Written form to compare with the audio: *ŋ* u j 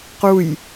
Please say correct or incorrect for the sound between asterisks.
incorrect